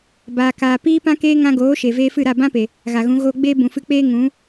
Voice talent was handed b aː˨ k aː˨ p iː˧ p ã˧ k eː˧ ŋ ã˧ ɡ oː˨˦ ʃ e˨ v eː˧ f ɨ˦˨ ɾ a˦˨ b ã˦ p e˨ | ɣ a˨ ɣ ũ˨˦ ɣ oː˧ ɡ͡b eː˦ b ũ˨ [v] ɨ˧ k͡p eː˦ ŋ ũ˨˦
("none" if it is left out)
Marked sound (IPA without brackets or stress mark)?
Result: f